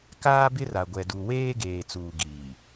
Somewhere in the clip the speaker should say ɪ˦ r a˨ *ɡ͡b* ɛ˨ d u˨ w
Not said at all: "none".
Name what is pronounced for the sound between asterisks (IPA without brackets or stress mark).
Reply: ɡʷ